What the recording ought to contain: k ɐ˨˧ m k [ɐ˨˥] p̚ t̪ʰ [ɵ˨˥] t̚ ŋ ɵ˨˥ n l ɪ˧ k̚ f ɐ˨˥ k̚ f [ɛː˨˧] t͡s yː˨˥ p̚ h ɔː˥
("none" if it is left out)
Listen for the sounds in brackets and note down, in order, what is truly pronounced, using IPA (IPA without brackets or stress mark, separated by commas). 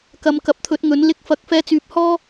ɐ˨˥, ɵ˨˥, ɛː˧